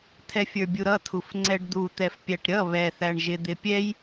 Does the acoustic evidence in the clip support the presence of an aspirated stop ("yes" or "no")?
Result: yes